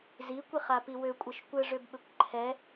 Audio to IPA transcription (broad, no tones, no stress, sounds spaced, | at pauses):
z i kʷ i χ a p i w ø kʷʼ ɘ ʃ kʷ ɘ ʐ ø b ɓ ɘ kʷ ǃʰ ɛ